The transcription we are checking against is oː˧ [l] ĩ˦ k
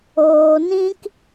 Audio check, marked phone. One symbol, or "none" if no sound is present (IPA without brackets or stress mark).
n